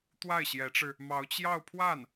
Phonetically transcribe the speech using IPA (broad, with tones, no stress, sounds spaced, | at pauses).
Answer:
t̪ w a˥˩ ɪ̯ ɕ j ɛ˧˥ ʈ͡ʂ ɻ̩˧ | m ɑ˧˥ ʊ̯ t͡ɕ j ɑ˥˧ ʊ̯ pʰ w a˥˩ n